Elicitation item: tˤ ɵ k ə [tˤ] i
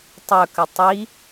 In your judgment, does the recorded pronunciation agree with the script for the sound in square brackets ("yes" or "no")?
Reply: yes